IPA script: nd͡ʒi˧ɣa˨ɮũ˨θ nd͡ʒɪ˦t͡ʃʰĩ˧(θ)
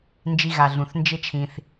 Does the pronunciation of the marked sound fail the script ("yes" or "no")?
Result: no